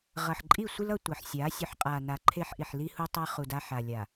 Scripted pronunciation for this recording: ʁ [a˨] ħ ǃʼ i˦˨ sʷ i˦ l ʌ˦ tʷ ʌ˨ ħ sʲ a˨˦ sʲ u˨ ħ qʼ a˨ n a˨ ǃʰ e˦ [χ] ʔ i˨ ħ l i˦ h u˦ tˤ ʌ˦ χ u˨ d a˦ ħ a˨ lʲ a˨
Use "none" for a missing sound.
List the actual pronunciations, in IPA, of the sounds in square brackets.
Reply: ʌ˨, ħ

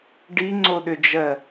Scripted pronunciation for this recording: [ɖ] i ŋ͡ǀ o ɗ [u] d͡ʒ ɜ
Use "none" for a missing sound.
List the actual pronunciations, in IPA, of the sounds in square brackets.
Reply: ɖ, ʏ

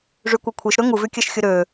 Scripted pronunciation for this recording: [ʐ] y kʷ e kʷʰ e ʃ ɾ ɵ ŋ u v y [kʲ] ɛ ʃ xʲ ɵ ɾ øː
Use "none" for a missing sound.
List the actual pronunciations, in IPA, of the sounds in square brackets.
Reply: ʐ, kʲ

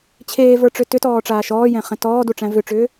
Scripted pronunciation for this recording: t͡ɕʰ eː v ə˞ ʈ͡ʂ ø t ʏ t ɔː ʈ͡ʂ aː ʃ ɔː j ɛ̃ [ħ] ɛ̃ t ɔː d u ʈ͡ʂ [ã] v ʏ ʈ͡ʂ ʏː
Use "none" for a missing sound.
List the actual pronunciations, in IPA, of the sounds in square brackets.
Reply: χ, æ̃

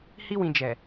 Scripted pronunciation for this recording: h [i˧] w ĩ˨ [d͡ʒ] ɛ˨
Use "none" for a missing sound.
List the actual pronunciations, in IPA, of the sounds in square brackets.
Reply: i˧, d͡ʒ

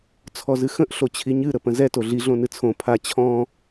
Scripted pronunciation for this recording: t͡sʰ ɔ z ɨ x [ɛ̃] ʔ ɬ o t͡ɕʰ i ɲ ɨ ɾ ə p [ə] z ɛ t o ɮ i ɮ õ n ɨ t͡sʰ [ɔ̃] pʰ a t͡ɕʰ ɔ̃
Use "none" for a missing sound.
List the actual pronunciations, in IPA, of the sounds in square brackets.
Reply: ə̃, ə̃, õ

